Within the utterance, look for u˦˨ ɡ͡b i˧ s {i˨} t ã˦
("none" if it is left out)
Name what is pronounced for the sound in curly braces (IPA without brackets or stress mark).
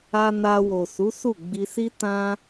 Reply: i˦